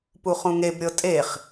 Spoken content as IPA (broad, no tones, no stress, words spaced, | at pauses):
puχũŋebɾʲɤ tʼeχ